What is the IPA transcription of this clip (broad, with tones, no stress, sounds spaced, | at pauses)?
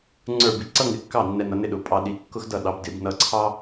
ŋ͡ǀ ə˞˥˩ b i˧ ǀ ʌ˥ ŋ ɪ˨˥ kː ɑ˥˩ nː ɛ˧ n ʌ˨˥ n ɪ˧ ɗ ʊ˨˩˦ pʼ ɑ˧ ɗ i˨˥ kː ʊ˥ x d ʌ˥˩ ɗ ɑ˨˥ b d ɪ˨˩˦ b n ʌ˧ ǀʰ ɑ˥